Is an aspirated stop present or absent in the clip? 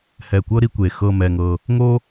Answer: absent